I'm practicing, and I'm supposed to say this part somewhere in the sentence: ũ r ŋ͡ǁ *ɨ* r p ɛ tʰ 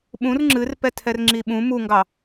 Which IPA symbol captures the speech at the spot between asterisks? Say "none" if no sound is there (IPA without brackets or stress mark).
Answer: ɨ